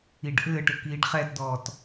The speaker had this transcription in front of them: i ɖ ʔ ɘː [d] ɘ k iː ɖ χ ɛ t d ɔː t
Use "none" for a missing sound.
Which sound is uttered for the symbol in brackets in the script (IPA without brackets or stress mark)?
ʈ